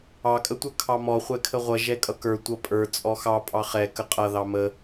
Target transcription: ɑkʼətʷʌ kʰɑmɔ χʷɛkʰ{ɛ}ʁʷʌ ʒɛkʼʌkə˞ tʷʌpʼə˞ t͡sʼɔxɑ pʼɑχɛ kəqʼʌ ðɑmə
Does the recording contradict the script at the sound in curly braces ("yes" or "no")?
yes